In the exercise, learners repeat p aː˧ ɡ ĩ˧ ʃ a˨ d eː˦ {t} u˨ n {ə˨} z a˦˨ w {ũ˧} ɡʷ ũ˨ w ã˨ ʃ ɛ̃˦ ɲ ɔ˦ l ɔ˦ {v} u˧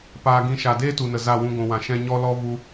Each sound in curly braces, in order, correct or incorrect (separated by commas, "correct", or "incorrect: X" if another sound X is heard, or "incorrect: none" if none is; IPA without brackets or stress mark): correct, correct, correct, correct